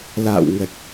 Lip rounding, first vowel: unrounded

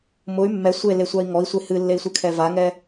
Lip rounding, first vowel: rounded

